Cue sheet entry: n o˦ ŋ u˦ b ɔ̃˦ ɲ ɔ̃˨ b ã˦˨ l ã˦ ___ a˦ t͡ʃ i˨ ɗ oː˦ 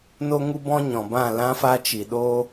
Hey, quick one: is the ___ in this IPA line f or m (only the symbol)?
f